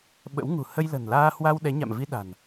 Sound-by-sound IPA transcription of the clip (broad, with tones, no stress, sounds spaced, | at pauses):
ɓ ə̰˧˥ w ŋ ṳ˨˩ h ə˧ j l ə̤˨˩ n l aː˧ h w a˧ w ɗ ɛ˨˦ ɲ a̰˧˨ m v i˧ ɗ a̤˨˩ n